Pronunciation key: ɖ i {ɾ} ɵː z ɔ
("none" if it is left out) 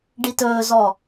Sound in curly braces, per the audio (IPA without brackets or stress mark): t